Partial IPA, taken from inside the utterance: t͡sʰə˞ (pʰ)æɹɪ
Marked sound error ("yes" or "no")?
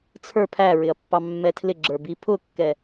no